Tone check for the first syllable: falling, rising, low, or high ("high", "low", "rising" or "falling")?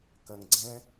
low